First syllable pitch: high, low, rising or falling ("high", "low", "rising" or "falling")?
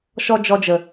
high